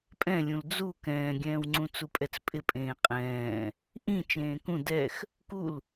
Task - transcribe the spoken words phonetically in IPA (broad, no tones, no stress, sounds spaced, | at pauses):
pʼ ɛ̃ lʲ ũ l d͡z u k ɛ̃ː ɡʲ ɛ̃ː w ŋ͡ǀ ũ t͡s u pʼ ɛ t͡s pʼ ɪ pʼ ẽː qʼ ɛ̃ː | ʔ ĩ t͡ʃ ẽː k ũ d ɛ x | k u l